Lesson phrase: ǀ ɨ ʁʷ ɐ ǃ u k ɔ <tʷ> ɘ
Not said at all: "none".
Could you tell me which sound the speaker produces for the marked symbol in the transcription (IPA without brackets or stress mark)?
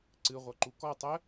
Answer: tˤ